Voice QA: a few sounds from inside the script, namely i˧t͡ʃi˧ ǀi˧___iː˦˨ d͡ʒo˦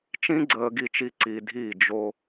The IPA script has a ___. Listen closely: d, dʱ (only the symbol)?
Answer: dʱ